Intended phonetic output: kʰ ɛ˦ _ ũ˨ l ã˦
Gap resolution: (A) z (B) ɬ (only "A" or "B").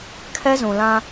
A